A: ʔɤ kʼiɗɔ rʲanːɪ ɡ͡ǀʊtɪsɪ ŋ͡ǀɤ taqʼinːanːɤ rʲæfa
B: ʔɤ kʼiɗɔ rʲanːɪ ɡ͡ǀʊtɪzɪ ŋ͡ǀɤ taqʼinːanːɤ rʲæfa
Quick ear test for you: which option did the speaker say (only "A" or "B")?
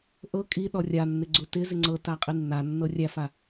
B